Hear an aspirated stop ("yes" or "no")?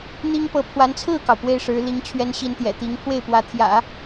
yes